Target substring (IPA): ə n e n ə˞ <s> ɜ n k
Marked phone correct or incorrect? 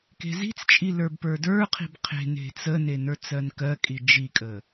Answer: incorrect